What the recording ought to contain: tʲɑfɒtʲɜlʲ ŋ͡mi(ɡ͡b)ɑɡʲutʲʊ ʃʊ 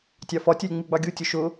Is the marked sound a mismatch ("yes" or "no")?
no